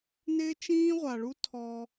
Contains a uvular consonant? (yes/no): yes